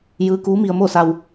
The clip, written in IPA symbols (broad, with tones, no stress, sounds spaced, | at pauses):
j ɯː˧˥ k uː˧˥ m i˧ ə̯ m o˥˨ s a˧ w